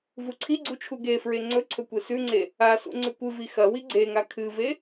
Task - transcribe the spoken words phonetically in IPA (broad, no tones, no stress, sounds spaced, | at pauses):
v u ǀʰ i ɡ͡ǀ u t͡ʃʰ u ɡ e f ɹ e ŋ͡ǀ ɵ ǀʰ ɵ kʷ e s ʉ ŋ͡ǀ e | a s ṵ ŋ͡ǀ ʉ kʷ ɨ v i x ɐ w i ɡ͡ǀ e ŋ a kʰ ɨ v e